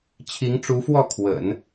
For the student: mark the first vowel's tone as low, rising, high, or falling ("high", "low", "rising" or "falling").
rising